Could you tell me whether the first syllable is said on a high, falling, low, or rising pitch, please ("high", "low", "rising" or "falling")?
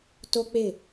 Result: high